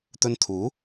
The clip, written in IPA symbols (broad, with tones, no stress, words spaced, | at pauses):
t̪ɵ˧nt̪ʰuː˨˥